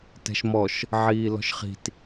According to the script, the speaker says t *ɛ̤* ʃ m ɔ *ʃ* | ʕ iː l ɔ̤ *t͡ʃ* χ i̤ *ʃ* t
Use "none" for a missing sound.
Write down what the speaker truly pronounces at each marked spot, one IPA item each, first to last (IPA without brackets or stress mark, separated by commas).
ɛ̤, ʃ, ʃ, none